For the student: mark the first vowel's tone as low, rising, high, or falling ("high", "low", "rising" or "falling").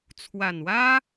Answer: low